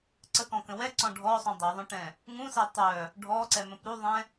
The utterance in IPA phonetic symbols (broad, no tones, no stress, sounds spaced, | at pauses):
ǀ ə k ɔ̃ k ə̃ w ɛ ǀ ɔ̃ ɖʱ ɔ sˤ ũ dˤ ɛ ðˤ œ̃ ʈ ɛ̃ | ŋ ũ s ɛ tˤ œ | ɖʱ ɔ ǀ ɛ m ə̃ p ɾ u ðˤ ɛ̃